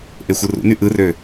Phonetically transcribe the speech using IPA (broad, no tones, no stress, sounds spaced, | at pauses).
ʔ e xʷ ɯ r ṵ n y ʔ ɯ r ø